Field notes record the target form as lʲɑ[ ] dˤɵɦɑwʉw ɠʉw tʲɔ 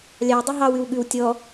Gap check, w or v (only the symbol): w